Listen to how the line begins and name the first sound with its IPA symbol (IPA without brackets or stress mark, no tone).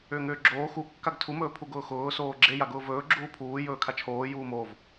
ʏː